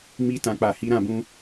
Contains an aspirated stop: no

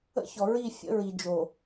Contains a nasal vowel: no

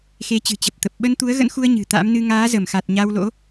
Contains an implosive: yes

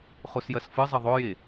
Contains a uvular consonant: yes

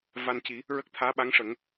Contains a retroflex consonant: yes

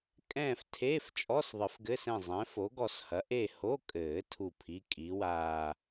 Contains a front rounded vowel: no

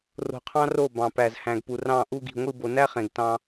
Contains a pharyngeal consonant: no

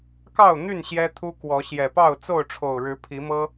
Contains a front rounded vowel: yes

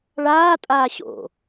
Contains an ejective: yes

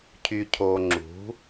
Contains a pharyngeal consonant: no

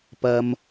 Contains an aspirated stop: no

